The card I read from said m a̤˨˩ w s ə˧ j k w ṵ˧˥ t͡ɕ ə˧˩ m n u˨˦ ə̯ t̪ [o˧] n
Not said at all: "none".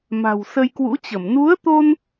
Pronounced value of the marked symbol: o˧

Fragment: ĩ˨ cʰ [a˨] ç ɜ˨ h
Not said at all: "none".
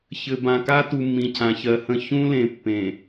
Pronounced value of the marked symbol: ã˨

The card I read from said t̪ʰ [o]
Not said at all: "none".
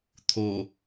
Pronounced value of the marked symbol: o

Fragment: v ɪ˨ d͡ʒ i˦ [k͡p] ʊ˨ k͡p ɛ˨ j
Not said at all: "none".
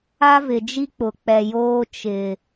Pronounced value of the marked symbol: k͡p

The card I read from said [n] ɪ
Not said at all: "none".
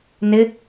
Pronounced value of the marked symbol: n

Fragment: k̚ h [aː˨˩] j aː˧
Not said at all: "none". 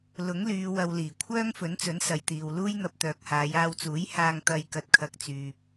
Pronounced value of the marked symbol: aː˨˧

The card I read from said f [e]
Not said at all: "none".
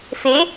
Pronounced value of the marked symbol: e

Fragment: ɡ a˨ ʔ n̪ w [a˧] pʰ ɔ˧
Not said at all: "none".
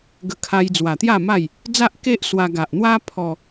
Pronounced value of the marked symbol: a˦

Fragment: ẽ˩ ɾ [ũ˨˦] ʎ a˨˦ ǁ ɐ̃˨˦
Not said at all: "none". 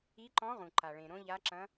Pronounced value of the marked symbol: õ˨˦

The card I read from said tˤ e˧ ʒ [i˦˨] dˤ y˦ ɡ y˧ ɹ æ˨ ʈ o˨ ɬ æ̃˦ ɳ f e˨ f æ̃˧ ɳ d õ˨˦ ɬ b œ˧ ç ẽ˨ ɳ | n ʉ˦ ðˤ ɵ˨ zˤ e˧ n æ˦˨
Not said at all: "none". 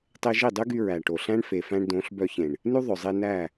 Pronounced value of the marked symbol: i˦˨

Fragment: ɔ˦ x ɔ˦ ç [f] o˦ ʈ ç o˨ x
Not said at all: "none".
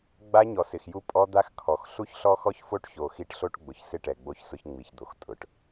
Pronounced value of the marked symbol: f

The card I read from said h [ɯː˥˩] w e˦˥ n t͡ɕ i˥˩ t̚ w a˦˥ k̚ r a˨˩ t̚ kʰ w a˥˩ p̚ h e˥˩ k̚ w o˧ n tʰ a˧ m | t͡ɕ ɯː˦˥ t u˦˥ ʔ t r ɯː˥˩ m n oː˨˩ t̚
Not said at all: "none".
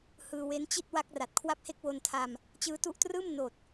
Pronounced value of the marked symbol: ɯː˧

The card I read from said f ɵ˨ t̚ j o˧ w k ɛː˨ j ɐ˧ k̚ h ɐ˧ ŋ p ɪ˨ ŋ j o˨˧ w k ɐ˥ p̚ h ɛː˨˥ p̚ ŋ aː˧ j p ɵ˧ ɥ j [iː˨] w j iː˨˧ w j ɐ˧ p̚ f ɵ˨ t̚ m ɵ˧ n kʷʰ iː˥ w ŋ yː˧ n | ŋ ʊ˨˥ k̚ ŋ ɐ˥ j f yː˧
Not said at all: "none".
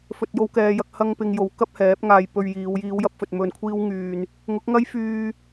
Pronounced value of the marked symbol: iː˨˧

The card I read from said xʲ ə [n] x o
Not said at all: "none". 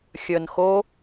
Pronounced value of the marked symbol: n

